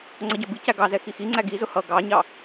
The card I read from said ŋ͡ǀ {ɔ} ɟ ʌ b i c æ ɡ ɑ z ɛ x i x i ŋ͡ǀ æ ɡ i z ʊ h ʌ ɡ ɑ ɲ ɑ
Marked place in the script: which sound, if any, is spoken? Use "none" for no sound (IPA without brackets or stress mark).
ʌ